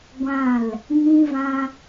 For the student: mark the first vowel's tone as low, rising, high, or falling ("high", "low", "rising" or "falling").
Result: falling